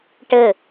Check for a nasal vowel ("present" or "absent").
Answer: absent